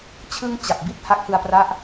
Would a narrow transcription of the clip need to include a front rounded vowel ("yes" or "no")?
no